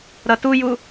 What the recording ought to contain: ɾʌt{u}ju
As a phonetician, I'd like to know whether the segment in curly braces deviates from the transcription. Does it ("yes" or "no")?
no